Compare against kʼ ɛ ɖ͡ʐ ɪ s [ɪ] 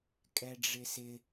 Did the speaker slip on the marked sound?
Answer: no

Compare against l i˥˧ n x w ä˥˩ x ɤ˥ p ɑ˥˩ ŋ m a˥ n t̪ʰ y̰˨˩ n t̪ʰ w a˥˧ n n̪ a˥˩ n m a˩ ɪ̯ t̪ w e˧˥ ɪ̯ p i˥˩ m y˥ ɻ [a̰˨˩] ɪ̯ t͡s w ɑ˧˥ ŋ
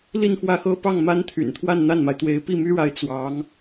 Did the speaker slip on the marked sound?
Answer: yes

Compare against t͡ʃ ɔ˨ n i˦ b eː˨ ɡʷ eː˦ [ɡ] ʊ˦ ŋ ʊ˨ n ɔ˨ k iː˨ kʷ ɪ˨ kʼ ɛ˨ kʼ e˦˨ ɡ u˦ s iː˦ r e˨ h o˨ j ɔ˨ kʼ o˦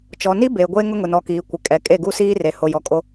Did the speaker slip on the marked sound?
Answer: yes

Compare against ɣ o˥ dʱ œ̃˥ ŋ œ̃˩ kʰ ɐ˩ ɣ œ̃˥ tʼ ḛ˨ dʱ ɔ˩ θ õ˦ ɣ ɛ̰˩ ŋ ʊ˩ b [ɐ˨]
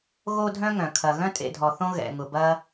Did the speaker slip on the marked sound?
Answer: yes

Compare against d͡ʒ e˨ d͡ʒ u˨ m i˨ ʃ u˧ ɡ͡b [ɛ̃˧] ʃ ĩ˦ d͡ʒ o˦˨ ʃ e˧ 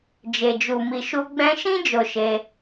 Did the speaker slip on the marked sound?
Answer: no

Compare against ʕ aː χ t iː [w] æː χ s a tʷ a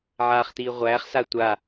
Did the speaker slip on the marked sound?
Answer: yes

